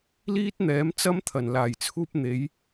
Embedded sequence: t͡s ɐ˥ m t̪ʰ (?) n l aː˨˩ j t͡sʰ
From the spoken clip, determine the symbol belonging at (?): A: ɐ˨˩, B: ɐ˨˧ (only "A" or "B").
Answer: A